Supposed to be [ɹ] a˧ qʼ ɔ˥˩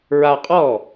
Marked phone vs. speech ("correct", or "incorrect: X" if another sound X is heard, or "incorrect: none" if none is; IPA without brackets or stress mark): correct